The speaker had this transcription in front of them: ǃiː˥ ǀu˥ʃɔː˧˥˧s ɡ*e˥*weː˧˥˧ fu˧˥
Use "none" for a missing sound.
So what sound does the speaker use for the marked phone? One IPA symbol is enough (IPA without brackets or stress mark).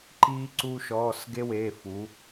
e˥